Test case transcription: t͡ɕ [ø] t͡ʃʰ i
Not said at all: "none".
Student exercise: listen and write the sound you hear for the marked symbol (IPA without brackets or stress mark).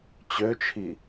ø